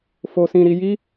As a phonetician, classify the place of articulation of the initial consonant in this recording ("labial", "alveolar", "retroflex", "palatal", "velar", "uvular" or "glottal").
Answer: labial